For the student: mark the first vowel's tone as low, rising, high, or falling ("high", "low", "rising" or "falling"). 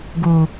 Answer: low